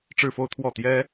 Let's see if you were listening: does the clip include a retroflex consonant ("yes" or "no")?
yes